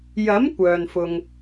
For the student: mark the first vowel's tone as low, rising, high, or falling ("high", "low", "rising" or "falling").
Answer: rising